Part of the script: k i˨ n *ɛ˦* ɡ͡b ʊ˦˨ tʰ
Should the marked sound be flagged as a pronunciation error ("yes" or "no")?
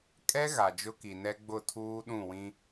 no